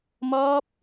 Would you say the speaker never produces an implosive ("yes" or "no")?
yes